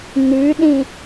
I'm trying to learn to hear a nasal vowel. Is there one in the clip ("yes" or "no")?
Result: yes